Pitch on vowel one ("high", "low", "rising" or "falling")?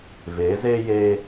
rising